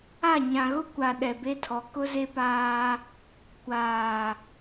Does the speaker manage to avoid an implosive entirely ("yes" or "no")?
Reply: no